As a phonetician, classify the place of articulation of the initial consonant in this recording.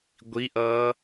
velar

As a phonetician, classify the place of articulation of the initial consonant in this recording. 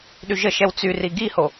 alveolar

